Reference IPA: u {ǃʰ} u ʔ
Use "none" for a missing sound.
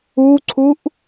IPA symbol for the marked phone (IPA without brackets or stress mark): ǀʰ